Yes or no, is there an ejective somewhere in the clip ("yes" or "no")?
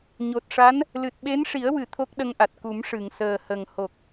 no